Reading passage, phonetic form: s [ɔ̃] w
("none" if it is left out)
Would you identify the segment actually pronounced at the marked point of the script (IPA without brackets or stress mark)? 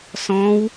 ɔ̃